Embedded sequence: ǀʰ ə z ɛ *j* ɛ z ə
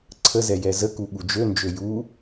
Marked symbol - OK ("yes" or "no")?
yes